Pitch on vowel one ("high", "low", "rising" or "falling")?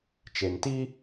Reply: low